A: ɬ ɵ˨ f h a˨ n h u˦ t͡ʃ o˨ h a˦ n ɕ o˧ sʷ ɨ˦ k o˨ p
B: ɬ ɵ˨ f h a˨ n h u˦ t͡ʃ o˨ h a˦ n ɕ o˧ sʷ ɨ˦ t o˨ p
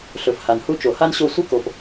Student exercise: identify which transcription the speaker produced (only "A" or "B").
A